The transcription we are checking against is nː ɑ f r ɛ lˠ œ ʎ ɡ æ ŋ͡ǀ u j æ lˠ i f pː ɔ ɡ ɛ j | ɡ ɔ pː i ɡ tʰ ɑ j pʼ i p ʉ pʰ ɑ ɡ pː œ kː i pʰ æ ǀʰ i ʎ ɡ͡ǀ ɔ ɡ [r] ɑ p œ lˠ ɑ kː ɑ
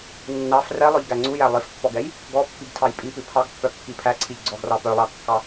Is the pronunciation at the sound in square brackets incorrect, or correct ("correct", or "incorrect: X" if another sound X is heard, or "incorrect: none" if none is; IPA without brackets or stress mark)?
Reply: correct